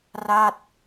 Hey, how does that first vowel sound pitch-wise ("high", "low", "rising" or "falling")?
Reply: falling